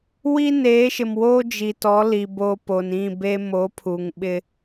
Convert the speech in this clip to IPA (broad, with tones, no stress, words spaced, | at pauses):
wi˦neː˨˦ʃɪ˨mwoː˦ d͡ʒi˨tɔ˨˦li˨ boː˦ po˨nĩ˦˨ be˦ moː˨˦pʰuː˨ŋ ɓɪ˦